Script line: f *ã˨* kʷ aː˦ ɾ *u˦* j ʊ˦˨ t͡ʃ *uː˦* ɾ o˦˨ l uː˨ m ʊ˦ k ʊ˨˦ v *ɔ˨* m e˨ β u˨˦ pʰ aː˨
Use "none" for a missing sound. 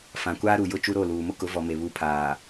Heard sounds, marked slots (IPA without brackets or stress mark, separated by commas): ã˨, u˨, u˦, ɔ˨